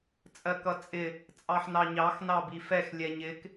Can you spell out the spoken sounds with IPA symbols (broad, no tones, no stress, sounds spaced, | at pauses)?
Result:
t͡sʼ ɜ k ʌ t͡sʼ ɪ | t͡sʼ ɑ ħ n ɑ ɲ ɑ x n ɑ b i f ɛ x lʲ ɛ ɲ ɪ k